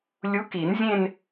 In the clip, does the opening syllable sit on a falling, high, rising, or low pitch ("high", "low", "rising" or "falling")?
rising